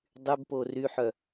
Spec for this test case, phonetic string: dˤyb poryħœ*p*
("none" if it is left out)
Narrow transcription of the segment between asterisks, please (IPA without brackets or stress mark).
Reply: none